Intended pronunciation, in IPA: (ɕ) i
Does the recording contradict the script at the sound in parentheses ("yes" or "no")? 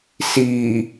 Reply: yes